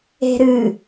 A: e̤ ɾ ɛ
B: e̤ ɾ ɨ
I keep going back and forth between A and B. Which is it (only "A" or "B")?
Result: B